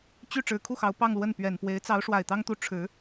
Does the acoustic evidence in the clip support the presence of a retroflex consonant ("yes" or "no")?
yes